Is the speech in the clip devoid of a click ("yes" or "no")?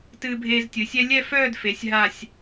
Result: yes